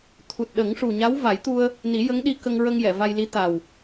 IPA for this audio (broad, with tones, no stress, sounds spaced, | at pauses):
t̪ʰ u˨˩ t̚ ɗ ə˨˩˦ ŋ ʂ u˨˩ ɲ a˧˥ w v a˨˩˦ j t̪ u˧ ə̯ | n i˨˩˦ j ə˧˥ ŋ ɗ i˧ k ə˧ ŋ ɹ ə˧ ŋ j ɛ˨˩˨ v a˧ j l i˧˥ t̪ a˨˩ w